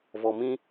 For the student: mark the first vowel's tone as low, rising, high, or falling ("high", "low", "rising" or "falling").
low